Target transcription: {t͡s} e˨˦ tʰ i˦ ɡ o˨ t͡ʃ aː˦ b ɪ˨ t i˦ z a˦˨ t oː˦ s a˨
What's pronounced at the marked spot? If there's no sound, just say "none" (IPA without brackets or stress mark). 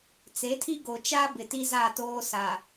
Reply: t͡s